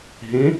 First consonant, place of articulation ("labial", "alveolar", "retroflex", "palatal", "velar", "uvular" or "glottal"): glottal